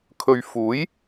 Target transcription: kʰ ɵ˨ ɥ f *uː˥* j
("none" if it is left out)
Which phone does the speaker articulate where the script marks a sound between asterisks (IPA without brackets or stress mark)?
uː˨˥